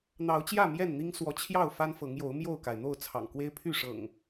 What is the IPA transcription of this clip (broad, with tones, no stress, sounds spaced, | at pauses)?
n̪ ɑ˨˦ ʊ̯ t͡ɕ j ä˥˨ m j ɛ˥˨ n n̪ i˦ ŋ s w ɔ˨˦ t͡ɕʰ j ɑ˥˨ ʊ̯ f a˦ n f ɤ˨˦ ŋ j o˨˦ ʊ̯ m j o˥˨ ʊ̯ k a˩ ɪ̯ n̪ o˥˨ ʊ̯ t͡sʰ ɑ̰˨˩ ŋ k w e˦ ɪ̯ pʰ y˥˨ ʂ ɤ̰˨˩ ŋ